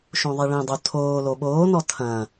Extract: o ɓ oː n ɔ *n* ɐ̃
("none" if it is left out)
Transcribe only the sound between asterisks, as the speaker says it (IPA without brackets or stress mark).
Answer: tʰ